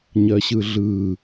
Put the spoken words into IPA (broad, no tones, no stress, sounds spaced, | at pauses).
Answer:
ɲ ɜ ɕ ɯ ɮ ɯ